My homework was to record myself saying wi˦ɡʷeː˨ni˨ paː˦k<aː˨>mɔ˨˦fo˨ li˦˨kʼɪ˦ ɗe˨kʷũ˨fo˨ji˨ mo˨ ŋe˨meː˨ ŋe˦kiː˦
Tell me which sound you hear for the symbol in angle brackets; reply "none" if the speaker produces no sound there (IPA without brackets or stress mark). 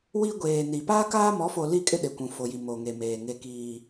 aː˦